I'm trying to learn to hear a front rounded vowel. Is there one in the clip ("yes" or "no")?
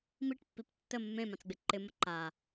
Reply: no